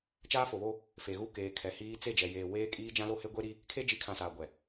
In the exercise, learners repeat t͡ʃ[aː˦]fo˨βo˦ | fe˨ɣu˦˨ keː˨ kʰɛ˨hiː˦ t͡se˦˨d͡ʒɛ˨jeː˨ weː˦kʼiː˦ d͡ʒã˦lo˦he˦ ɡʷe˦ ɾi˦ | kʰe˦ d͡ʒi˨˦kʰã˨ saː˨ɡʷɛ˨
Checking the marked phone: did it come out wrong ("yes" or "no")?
no